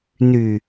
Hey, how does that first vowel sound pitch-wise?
low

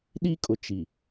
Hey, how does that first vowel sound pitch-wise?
high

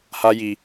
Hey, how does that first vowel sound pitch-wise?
high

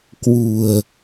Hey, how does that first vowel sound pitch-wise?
low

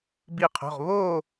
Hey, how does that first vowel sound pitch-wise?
falling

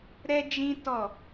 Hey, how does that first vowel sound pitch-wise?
high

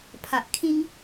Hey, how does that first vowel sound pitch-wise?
low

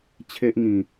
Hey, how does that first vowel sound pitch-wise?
high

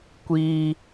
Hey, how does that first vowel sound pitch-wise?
high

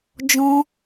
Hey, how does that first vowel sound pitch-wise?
high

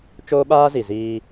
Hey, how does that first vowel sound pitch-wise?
high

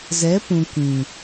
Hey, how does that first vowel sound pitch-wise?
rising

